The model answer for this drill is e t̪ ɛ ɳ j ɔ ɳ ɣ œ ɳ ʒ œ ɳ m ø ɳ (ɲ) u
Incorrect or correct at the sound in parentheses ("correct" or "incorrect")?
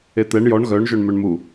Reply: incorrect